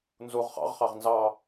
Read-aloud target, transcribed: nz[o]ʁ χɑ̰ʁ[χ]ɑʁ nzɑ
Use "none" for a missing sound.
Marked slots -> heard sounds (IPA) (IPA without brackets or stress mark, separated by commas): u, χ